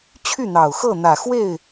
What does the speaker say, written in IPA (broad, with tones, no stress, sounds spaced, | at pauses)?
t͡ɕʰ y˥˩ n̪ ɑ˨˩ ʊ̯ x ɤ˥˩ n̪ ä˨˩ x w e˥˩ ɪ̯